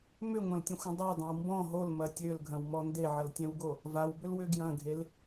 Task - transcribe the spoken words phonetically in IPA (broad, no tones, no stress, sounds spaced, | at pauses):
m ʏ ŋʷ ɐ̃ l tʲ ə̃ xʷ ə̃ dˤ a dˤ ɐ̃ w m b ɔ̃ ɦ o l m ɐ tʲ ø l ɡʱ ɐ̃ w m ɔ n d e ʕ ɐ l tʲ ɛ̃ w ɡ o | v a w b ʏ l w ʏ ɡ j ɐ̃ ɡʱ e l